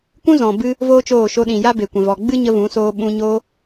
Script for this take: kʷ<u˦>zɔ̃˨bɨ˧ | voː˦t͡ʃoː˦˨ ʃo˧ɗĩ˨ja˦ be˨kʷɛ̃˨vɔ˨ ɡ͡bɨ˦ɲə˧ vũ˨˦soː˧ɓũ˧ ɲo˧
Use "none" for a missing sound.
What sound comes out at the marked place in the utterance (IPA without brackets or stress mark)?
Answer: ũ˦